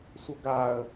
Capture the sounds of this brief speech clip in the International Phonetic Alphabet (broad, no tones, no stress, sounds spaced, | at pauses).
sʷ ə ɡ a ə̯